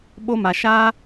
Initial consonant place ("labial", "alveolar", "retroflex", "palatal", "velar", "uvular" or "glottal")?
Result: labial